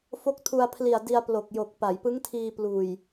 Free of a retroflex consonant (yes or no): yes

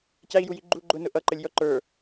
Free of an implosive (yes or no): yes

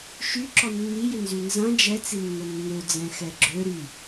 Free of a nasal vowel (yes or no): no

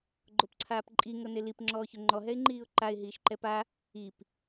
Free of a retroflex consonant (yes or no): yes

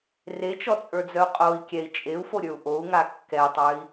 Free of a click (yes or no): yes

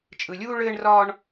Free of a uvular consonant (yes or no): yes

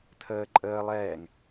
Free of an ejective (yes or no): no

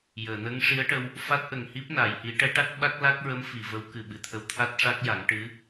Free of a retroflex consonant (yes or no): no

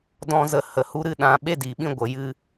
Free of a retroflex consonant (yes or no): yes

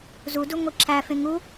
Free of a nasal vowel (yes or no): no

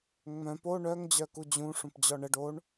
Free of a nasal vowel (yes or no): no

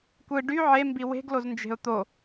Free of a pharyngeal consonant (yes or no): no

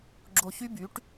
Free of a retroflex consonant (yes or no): no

